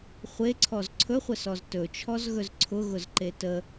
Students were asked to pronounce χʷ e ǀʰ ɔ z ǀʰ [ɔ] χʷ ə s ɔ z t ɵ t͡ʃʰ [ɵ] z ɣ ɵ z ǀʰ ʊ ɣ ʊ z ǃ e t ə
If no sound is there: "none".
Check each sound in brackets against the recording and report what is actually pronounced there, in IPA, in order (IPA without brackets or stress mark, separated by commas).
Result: ɵ, ɔ